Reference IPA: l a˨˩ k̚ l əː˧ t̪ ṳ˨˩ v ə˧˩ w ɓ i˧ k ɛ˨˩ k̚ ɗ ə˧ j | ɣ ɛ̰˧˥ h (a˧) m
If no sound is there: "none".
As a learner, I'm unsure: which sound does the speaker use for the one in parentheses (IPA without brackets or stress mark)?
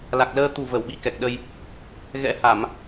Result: a˧˩˨